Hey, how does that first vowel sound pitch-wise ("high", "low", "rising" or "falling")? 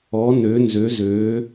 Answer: rising